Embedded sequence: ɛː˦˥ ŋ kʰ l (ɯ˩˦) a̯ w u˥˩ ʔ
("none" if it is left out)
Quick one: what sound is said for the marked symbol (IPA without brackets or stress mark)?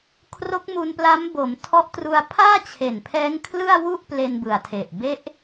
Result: ɯ˥˩